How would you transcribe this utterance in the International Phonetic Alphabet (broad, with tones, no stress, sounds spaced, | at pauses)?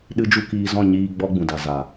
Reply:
ɗ ɨ˦ d͡ʒ u˦ k iː˧ z ɔ̃˦˨ ɲ iː˧ ɡ͡b ɔ˦ ɡ͡b ũ˨ d a˨ z a˨